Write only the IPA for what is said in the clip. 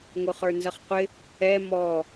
ŋ ʊ χ ə˞ n z ʌ χ qʷ ɪ | ɛ m ɔ

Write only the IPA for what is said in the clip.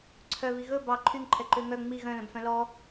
ǀʰ œ β i ɣ ɵ b ɑ ǃʰ y ŋ ǃʰ ɛ ǃ ø ŋ œ ŋ͡m i ɣ œ̃ l œ̃ b f œ̃ l ɔ

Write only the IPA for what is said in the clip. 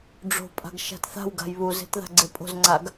ɖ͡ʐ o̤ pʼ a̤ ɡ ʃ a̤ t θ a̤ w ɡ a̤ j β u z e̤ t ð a̤ ɡ͡ǀ e pʼ o̤ z ŋ͡ǀ a ɡ

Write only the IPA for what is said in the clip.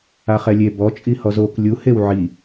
a χ ɛ lʲ e b ɔ t͡ʃʼ i h ɔ z o k lʲ u h e w ʕ i

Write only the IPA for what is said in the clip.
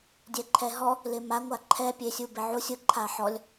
dʲ ɛ ǃʰ ɛ ɦ ɔ | l ɪ m a ŋʷ a ǃʰ ɛ pʲ e sʲ u b ɪ ʕ u sʲ ʊ ǃʰ a ħ ɔ lʲ

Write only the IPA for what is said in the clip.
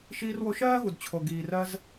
ʃ iː˧ r w o˧ ʃ ɜː˥ ɣ u˩ d t͡ɕʰ o˩ ɡ iː˩ r ɜ˧ z

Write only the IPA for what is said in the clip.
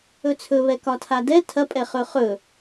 ɵ t͡sʰ ɵ β ɛ k ɒ tʰ a d ɛ tʰ ɐ pʼ ɛ χ ɵ χ ɵ

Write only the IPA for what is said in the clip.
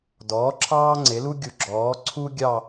d ɔː˩˥ ǁʰ ɑː˥ ŋ͡ǀ e˩˥ l u˥ ɡʲ u˨˩˦ ɡ͡ǁ ɔː˩˥ ǀʰ u˥ ɡʲ ɑ˥˧

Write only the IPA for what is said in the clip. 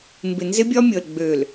m b ɪ˨ n z ɪ˦ bʲ ɒ˦ mʲ ɤ˨ l ɡ͡b ø˨ l

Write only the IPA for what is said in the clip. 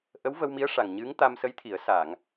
ʔ ə˧˥ w v ə˧ w m i˧˥ ə̯ ʂ a˨˩ ŋ ɲ ɨ˧˥ ŋ t̪ a˧ m s ə˧˥ j t̪ʰ i˨˩˦ ə̯ s a˨˩˨ ŋ

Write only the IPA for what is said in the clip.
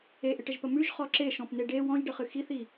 e ʔ ɪ ʈ ə ʒ p ə m ʉ ʒ χ ɔ ǁ e ʃ ɔ̃ p n e ɖ e w ɔ̃ ʒ ɖ ə χ ɨ x i θ i

